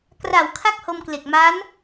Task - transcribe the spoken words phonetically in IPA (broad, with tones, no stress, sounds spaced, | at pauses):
k r a˩˦ w kʰ a˥˩ k̚ h o˧ m k l e˨˩ k̚ m a˦˥ n